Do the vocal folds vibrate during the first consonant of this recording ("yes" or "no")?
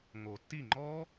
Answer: yes